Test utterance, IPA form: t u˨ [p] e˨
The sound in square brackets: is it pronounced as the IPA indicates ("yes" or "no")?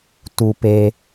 yes